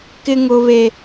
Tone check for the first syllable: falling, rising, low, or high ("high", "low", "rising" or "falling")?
high